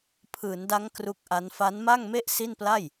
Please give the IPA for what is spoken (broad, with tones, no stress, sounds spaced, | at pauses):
pʰ ɯː˩˦ n d a˦˥ ŋ k r u˦˥ k̚ ʔ a˦˥ n f a˦˥ n m a˥˩ ŋ m e˥˩ ʔ s i˥˩ n p l a˥˩ j